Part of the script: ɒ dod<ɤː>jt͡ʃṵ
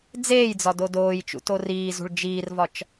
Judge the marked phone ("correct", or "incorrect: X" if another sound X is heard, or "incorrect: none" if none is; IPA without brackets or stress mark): incorrect: oː